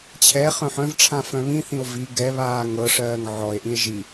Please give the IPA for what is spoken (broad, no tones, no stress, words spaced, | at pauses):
t͡ɕʰɛ χœ̃ħœ̃vʈ͡ʂʰã fœ̃βĩθĩo̯ vi ɡɛβaː ŋɤʂɜːŋ ʕɔe̯ʔĩe̯ ʒi